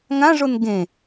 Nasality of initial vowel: nasal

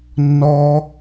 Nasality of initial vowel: oral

